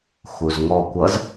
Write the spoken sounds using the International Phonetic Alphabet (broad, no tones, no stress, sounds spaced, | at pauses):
x u z ŋ ɔ kʷ ʌ z